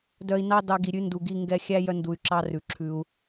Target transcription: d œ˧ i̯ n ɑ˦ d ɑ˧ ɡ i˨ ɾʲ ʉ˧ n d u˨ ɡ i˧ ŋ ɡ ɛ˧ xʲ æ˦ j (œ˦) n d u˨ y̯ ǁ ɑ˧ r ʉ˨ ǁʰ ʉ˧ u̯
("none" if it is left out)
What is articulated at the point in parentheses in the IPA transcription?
œ˧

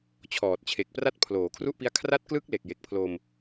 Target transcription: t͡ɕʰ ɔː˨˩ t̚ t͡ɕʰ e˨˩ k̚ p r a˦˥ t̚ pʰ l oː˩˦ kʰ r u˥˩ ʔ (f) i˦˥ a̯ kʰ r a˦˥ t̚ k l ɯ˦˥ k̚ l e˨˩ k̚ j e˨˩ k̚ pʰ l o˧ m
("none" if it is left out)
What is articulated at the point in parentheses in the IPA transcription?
p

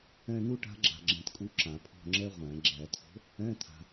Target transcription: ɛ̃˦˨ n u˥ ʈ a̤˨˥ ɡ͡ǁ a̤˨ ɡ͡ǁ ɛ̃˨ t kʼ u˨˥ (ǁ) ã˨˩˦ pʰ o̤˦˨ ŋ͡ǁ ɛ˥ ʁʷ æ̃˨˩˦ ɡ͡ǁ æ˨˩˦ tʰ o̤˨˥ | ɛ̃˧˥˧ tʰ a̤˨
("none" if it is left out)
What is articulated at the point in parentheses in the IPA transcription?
ǁ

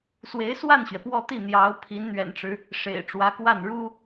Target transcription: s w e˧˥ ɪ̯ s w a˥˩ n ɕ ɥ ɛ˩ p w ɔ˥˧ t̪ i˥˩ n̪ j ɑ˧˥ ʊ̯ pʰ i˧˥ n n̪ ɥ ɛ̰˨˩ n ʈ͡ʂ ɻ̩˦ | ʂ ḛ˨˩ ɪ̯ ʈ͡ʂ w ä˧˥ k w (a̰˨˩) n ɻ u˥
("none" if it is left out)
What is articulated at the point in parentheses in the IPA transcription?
a˥˩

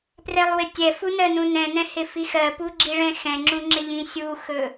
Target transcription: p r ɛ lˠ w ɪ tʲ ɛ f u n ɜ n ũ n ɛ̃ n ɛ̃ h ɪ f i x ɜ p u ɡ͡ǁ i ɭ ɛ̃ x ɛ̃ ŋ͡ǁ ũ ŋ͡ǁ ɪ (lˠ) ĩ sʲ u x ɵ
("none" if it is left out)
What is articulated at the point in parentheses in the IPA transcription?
ʎ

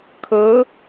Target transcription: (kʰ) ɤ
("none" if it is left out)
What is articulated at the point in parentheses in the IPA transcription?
kʰ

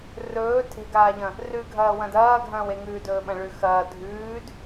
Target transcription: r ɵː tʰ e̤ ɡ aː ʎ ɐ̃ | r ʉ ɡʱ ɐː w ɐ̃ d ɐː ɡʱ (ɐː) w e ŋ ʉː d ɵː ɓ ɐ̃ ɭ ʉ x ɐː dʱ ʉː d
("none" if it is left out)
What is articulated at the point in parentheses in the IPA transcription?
ɐ̃ː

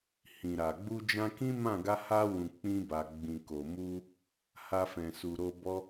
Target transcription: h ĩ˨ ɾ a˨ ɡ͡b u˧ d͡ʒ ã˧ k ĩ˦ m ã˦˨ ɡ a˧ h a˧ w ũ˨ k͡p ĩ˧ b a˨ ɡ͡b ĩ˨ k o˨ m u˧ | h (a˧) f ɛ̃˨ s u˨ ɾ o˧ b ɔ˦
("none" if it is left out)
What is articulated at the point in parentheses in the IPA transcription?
a˧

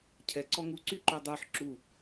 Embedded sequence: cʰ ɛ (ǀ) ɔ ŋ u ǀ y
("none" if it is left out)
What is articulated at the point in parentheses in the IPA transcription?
ǀ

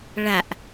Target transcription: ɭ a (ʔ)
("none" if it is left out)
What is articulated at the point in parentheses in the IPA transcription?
ʔ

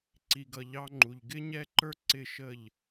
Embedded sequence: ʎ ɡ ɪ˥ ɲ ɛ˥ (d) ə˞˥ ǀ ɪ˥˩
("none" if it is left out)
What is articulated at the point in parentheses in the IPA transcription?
ǃ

